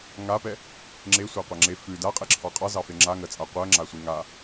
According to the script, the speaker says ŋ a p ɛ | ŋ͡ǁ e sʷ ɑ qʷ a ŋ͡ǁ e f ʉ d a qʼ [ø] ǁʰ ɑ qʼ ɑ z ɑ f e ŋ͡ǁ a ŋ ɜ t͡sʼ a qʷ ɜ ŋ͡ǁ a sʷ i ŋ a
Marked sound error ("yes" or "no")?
yes